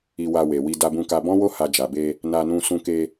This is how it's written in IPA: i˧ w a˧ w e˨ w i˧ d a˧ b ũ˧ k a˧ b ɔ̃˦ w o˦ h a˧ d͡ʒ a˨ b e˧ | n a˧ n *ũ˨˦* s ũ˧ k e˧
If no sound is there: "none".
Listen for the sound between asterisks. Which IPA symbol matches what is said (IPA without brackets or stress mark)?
ũ˧